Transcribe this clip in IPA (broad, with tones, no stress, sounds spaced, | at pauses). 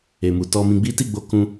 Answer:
e˨ m u˨ t ɔ˧ m ĩ˧ ɡ͡b i˦ t i˦˨ ɡ͡b o˨˦ k ũ˧